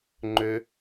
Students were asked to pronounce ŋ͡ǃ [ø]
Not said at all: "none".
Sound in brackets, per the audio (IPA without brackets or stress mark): ø